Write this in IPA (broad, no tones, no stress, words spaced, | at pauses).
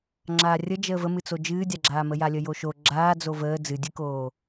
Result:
ŋ͡ǁaːrʲə d͡ʒəːvəmɨt͡so d͡ʒɨːdʲaɡ͡ǁaːmə jalʲəjoʃo ɡ͡ǁaː d͡zovəː d͡zɨdʲɨkoː